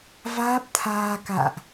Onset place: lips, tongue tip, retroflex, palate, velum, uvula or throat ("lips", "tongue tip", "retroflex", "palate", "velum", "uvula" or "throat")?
lips